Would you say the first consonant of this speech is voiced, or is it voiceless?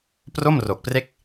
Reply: voiceless